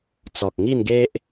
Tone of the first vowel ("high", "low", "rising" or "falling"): low